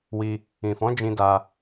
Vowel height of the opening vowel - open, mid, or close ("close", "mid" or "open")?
close